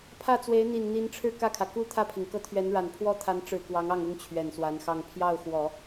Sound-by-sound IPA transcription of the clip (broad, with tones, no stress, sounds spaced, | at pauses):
pʰ ä˥˩ t͡s w e˧˥ ɪ̯ n̪ i˨˩ n n̪ i˧˥ n ʈ͡ʂʰ ɻ̩˥˧ k ä˥˩ kʰ ä˩ k u˥ t̪ʰ ä˥˩ pʰ i˩ ŋ k ɤ˥˩ t̪ʰ ɥ ɛ˧˥ n ɻ a˨˩ n pʰ w ɔ˥ t̪ʰ a˧˥ n ʈ͡ʂ ɻ̩˨˩ k w ɑ˧˥ ŋ ɑ˥˩ ŋ ʊ˥ ŋ t͡ɕʰ ɥ ɛ˨˩ n s w a˧˥ n x ɑ˥˧ ŋ pʰ j ɑ˥˩ ʊ̯ x w ɔ˨˩˦